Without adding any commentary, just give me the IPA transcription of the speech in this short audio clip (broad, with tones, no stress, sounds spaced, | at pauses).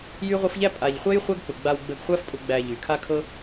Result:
j y˦ ʁʷ ɤ˦ f ʎ æ˥ pʼ a˩ ʎ χʷ ɛ˦ j χʷ æ˦ ɡ k͡p ʊ˩ ɡ͡b a˨ w ɡ͡b ə˨ ɡ χʷ æ˦ f pʼ ʊ˨ ɡ͡b æ˨ ʎ y˩ kʰ a˥ kʰ ɤ˥